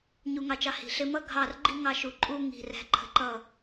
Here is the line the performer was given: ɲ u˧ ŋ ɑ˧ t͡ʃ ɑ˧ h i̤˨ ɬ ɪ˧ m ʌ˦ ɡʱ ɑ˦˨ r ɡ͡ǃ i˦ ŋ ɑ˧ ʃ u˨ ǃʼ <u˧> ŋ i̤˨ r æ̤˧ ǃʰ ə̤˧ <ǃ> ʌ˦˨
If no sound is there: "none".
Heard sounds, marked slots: u˧, ǃ

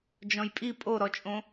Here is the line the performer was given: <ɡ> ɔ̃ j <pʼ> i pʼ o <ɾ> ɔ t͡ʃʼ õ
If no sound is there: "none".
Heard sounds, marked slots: d͡ʒ, pʼ, ɾ

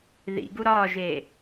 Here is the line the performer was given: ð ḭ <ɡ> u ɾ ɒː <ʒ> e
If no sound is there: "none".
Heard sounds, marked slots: ɡ, ʒ

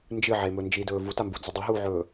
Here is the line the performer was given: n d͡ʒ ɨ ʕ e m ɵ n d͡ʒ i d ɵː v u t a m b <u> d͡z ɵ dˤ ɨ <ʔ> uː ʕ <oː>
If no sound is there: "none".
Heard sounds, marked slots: u, ɦ, ɵː

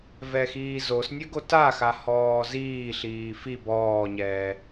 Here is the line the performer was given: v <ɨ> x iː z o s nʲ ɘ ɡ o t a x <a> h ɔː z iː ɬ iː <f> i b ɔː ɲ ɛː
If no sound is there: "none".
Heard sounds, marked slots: ɛ, a, f

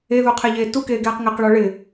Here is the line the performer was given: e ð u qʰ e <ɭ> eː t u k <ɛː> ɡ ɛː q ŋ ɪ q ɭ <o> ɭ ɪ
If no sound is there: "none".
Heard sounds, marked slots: ʎ, eː, ɔ

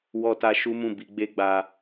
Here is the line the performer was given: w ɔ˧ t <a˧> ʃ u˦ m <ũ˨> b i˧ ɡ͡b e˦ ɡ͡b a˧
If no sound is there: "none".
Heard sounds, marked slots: a˧, ũ˦˨

